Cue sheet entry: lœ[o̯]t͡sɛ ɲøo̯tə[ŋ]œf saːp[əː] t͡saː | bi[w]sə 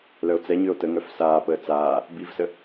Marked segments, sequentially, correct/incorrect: correct, correct, correct, incorrect

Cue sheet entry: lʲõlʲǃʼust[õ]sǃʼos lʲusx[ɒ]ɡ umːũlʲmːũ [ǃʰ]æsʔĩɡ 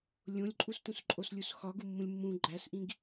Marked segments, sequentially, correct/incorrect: incorrect, correct, incorrect

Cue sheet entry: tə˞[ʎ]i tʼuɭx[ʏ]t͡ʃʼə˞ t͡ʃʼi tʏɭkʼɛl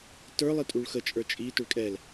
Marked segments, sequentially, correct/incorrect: incorrect, incorrect

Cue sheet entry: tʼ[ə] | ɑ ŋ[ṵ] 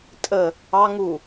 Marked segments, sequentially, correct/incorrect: correct, incorrect

